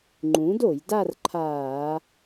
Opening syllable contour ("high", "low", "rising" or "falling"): rising